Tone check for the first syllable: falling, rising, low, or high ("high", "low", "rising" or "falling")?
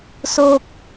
high